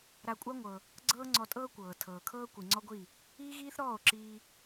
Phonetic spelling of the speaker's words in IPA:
ɾ a˧ kʷʼ a˦ ŋʷ ɤ˧ | ɡ͡ǀ ɤː˦ ŋ͡ǀ ɔ˧ tʼ ɤː˦ kʷ ɤː˨ tʰ ɤː˨ kʰ ɤː˦ kʷ i˨ ŋ͡ǀ ɔ˦ ɡʷ i˦˨ | iː˦ ɣ iː˦ θ ɾ ɔː˦˨ o̯ ǁ iː˧

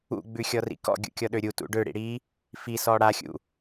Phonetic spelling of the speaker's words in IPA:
ṵ ɡ͡b ʉ xʲ ɔ r ḭ k ɔ̰ ɡʲ ṵ kʲ ɔ ɗ ø ɾʲ u t ṵ ɖ ø ɽ ḭ ɽ i | f i s ɔ ɽ a xʲ ṵ

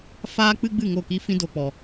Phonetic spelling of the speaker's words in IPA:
f aː˦ k͡p ɨ˦ ɡ͡b ɨ˦˨ ŋ o˦˨ k i˦ f ĩ˦ d o˧ k͡p ɔ˨

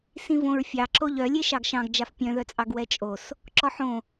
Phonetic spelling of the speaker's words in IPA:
s ĩ v õ ɹ fʲ ɑ ǁ o ʎ œ lʲ e ʃ ɑ ɡ ʃ ɑ̃ ɡ d͡ʒ a f pʲ œ̃ ð œ t͡sʼ ɑ ɡ w ɛ t͡ʃʼ o s | ǁ ɔ ħ õ

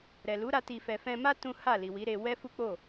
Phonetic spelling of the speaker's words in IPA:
ɾ ɛ˨ l u˨˦ ɾ a˧ t i˨ f ɛ˨ f ɛ̃˧ m a˦ t ũ˦ h a˦˨ l i˨ w i˨˦ ɾ e˧ w ɛ˦ f u˦ k͡p o˦˨

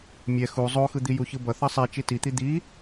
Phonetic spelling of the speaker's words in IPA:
mʲ ɛ x u zˤ o x ɯ d̪ i j u ç ɯ b ʌ θ ʌ sˤ i t͡ʃ i t i t̪ i d̪ i

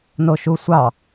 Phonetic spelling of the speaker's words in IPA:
n o ʃ u sʷ ɑ

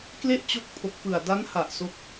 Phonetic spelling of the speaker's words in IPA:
k l e˥˩ ʔ t͡ɕ o˦˥ k̚ pʰ o˨˩ k̚ p ɯ˨˩ a̯ d a˦˥ n h a˨˩ ʔ s o˦˥ k̚

